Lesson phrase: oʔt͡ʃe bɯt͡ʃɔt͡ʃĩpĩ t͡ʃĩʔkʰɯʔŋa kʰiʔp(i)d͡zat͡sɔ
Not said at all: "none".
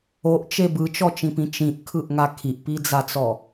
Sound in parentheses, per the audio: i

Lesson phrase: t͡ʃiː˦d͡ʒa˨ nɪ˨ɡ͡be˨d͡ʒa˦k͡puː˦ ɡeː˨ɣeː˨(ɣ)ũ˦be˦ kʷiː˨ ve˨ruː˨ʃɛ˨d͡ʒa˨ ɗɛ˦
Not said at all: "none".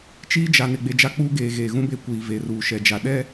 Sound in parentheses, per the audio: ɣ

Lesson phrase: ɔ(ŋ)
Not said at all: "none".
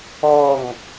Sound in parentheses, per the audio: ŋ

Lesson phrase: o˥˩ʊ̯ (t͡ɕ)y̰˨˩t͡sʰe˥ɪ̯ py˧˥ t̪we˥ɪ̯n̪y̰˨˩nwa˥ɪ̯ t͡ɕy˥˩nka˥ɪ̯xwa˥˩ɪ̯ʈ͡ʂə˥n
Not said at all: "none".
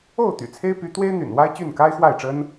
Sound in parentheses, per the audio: t̪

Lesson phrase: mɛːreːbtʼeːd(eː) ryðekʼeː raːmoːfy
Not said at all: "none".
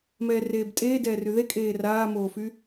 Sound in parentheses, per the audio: ɛː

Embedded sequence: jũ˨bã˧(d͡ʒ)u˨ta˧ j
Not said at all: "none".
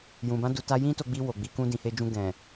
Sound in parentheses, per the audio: d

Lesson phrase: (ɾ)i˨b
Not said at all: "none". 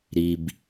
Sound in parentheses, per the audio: ɾ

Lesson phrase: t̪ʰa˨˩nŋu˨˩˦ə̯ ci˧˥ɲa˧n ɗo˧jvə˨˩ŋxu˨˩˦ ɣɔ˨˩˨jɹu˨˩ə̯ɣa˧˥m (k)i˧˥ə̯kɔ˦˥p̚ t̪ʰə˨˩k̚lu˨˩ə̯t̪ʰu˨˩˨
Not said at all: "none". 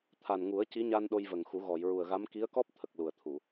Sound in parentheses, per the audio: k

